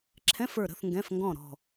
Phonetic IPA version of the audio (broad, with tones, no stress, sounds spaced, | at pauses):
ǁʰ ɛ̃˧˥˧ f ə˞˦˨ ɾ ə̤˧˥˧ θ ŋ ɡ ɛ̃˧˥˧ f ŋ ɡ ɔ̃˦˨ ɾ ɔ̤˦˨